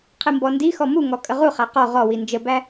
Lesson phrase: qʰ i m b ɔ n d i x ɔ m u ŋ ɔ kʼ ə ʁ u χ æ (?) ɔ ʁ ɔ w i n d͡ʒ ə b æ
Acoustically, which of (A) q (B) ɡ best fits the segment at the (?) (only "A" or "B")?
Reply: A